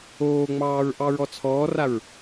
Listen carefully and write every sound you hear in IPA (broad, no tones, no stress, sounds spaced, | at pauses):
oː ŋ͡m ɑː ɹ ʔ ɑ ɹ ɔ t͡sʰ ɔː r a ɹ